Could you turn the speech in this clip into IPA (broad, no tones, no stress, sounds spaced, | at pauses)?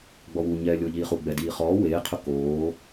ɡ͡b ɔ w u ɲ ɛː lʲ ʊː ʎ iː χ u ɡ͡b ɛ d iː χ ɔː w eː qʰ ʊ k oː